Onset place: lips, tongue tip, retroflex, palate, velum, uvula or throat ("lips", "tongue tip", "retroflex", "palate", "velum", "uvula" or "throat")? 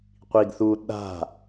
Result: uvula